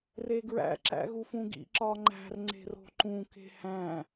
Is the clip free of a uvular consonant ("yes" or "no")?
yes